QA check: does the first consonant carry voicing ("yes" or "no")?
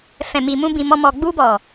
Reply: no